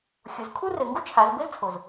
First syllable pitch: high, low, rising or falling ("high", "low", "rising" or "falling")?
rising